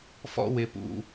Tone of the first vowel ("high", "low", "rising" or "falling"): high